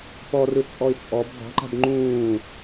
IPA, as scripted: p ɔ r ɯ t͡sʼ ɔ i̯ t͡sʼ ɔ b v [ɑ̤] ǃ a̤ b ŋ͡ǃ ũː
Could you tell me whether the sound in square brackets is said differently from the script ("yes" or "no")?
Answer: no